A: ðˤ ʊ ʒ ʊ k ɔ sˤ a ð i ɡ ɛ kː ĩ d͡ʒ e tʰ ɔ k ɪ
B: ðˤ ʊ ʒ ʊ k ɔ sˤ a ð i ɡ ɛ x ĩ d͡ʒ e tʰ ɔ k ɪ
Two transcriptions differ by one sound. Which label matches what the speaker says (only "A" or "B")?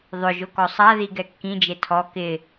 A